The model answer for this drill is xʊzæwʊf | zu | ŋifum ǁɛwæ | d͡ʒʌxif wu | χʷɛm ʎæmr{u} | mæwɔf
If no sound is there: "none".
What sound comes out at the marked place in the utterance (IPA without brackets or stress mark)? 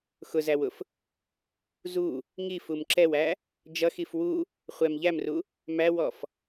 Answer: u